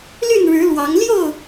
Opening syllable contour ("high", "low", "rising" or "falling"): falling